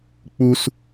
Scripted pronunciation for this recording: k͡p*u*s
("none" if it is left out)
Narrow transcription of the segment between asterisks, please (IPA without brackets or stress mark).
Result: u